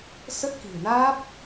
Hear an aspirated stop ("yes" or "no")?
no